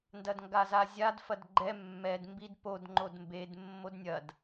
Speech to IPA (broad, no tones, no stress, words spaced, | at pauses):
ndɐdŋɡazazʲad fɐdɡ͡ǃɛ mːɛd mbidpod ŋ͡ǃodmbed mːodnʲɐd